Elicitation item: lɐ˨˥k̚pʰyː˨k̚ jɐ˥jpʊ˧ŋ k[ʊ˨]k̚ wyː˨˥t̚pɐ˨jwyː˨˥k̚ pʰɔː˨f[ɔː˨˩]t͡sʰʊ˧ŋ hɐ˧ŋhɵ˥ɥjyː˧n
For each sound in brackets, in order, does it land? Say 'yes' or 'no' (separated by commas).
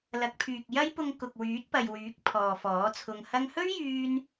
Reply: yes, no